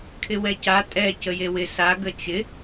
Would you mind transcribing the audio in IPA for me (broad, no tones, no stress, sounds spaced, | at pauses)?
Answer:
kʰ ɪ w ɛ c a tʼ ɛ c ə j e w ɪ s a ɡ ə t͡ʃ ɪ